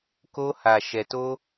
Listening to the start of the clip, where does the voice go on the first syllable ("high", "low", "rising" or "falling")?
high